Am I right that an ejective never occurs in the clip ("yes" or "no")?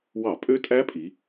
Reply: no